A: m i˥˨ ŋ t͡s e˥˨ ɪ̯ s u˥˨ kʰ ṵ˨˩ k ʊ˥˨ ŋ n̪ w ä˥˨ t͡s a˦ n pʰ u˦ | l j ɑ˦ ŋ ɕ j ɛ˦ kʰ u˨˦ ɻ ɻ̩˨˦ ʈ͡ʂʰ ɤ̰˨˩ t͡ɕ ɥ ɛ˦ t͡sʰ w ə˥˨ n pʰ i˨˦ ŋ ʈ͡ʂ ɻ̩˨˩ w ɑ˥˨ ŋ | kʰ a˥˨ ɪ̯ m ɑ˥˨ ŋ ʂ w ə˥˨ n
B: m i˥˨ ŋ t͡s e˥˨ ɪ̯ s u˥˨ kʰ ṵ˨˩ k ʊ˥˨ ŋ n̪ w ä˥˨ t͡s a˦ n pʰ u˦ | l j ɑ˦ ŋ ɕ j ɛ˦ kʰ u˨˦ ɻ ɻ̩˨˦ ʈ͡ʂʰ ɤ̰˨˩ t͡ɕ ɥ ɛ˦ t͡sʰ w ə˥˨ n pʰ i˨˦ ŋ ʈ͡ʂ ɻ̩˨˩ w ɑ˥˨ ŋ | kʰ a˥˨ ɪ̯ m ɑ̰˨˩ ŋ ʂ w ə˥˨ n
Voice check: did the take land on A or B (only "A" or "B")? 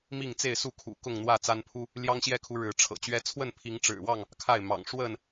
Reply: B